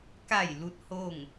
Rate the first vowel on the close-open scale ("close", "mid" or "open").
open